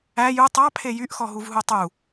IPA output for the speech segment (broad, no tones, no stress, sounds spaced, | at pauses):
æ j u tˤ ɑ pʰ e j y ʔ x ɔ ɦ u v ɦ u tˤ u